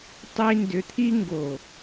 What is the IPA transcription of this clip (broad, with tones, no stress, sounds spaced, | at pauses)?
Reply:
tˤ i˨ n d ʏ˨ t̪ʰ i˦ ŋ ɡ o˨